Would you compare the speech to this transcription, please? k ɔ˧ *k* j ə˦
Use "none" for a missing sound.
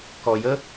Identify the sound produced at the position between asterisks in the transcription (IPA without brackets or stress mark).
none